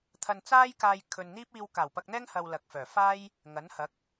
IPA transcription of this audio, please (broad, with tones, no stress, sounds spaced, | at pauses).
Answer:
t̪ʰ ɐ˧ n t͡s aː˥ j k aː˧ j kʰ ɵ˧ n n̪ iː˥ p̚ iː˧ w k aː˨˩ w p ɐ˧ k̚ n̪ ɛː˥ ŋ h ɐ˨ w l ɐ˨ k̚ f œː˨˩ f aː˥ j | ŋ ɐ˨˥ n h ɐ˨˥ k̚